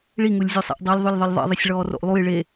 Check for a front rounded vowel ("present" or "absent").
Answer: absent